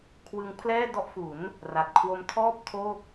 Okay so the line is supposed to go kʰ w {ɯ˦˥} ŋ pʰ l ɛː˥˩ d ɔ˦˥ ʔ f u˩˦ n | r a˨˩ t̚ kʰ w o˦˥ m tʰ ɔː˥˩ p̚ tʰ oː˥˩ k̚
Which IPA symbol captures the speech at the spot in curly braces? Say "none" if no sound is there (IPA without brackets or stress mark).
ɯ˧